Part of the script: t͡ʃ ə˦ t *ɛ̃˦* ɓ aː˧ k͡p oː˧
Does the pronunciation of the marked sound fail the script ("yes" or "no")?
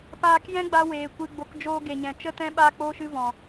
no